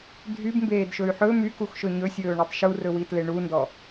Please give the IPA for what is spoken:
dʱ y b m b eː d ʃ ɵ y̯ ħ ɵ m y k u x ʃ ɵ ɲ ɵ sʲ ɵː ɳ ɵ tˤ ʃ u r ɵ w i t l e ɳ u n d ɔ

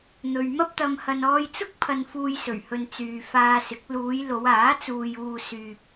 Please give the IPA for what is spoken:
n̪ ɵ˧ ɥ m ɐ˥ p̚ t̪ ɐ˧ m h ɐ˧ n ɔː˧ j t͡s ʊ˥ k̚ pʰ ɐ˧ n f uː˧ j s ɵ˨˩ ɥ h ɵ˨ n t͡s yː˨ f aː˧ s ɪ˨˥ k̚ l uː˨˧ j l o˨˧ w aː˨˥ t͡s uː˨ j uː˨ s yː˨ p̚

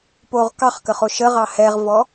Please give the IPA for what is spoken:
p o ʁ k ɑ χ k ə χ o ʃ ə ʁ ɑ h ɛ ʁ v ɔ

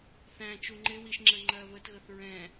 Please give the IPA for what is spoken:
θ æ̃ t͡ʃ u ŋ͡ǃ ɪ w i ʃ ŋ͡ǁ ə ŋ͡ǃ ɜ β ə t ɣ ə θ ɹ ɛ̃

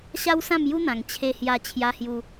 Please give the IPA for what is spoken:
ɕ a˦ w s ã˥˧ m j u˦ n̪ ã˨˩ ŋ t͡ɕʰ e˧ h j a˧ t͡ɕʰ j a˦ h j u˦

